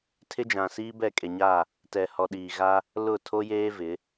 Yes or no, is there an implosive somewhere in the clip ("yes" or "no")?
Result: yes